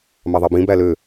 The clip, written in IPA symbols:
m ɑ ðˤ ɑ b ĩ b æ l ø

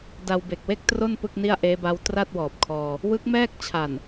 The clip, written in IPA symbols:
d a˧ w b e˨˩ k̚ w e˥˩ k̚ t r o˥˩ n p ɯ˥˩ k̚ n i˥˩ a̯ ʔ eː˦˥ b a˦˥ w t r a˥˩ t̚ w ɔː˨˩ p̚ kʰ ɔː˧ | w ɯ˦˥ k̚ m ɛː˥˩ k̚ t͡ɕʰ a˨˩ n

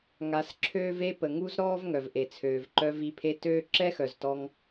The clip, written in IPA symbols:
ŋ a˧ s ǁʰ øː˦ v e˦ p ə˨ ŋ u˦ z ɾ ɔː˦ v ŋ œ˨ v ʔ e˨ t͡sʰ øː˨ v ǃ œ˧ v i˨˦ pʰ e˧ t øː˦ ǁ ɛ˦ x œ˨ z t ɔ˧ ŋ

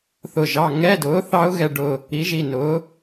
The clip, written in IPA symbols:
θ ʊ˦˨ ʒ ɑ˧˥˧ ŋ ɛ˧˥˧ d ʊː˨˥ θ ɑ˦˥ ʊ̯ ɣ ɛ˦˨ ɖ ʊ˦˨ | i˨˥ ʒ i˩˧˩ n ʊː˨˥

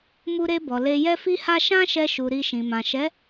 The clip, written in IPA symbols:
m u˧ ɾ e˧ b ɔ˨ l e˧ j ɛ˦ f i˦ h a˦ ʃ ã˦ ʃ ɛ˧ ʃ u˨ ɾ i˧ ʃ ĩ˨ m ã˨ ʃ ɛ˨˦

